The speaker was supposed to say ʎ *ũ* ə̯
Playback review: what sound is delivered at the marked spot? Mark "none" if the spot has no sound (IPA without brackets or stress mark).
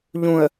ũ